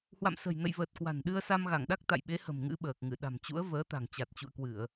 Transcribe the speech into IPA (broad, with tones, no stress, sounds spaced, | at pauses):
h w a̰˧˨ m s ə̤˨˩ j n ə̰˧˨ j v əː˨˩ t̚ k w a̤˨˩ n ɗ ɨ˧ ə̯ s a˧ m ɣ a˧˩ ŋ ɗ a˦˥ k̚ t̪ a̰˧˨ j ɓ e˨˦ h ə̤˨˩ m ŋ ɨ̰˧˥ ɓ əː˨˩ k̚ ŋ ɨ˧˩ ɗ a̤˨˩ m t͡ɕ ṵ˧˥ ə̯ v əː˨˦ t̪ a̤˨˩ ŋ t͡ɕ a˨˩ t̚ t͡ɕ ṵ˧˨ ə̯ k w ɨ˧˩˨ ə̯